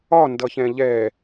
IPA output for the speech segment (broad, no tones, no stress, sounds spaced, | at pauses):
ɒ n d ʌ ç ɛ̃ ʎ ɛ